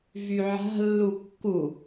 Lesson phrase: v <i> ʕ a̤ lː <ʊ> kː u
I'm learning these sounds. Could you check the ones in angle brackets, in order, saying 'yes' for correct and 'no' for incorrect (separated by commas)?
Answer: no, no